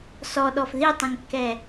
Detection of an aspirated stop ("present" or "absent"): absent